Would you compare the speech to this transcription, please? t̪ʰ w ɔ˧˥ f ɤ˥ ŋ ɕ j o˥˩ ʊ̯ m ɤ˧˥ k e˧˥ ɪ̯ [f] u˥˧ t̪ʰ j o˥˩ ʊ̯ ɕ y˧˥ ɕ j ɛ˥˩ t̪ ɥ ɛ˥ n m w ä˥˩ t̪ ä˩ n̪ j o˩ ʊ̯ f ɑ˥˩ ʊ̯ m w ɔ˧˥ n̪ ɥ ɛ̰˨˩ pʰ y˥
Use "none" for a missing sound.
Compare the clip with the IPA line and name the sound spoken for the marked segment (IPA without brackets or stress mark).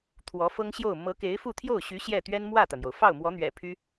f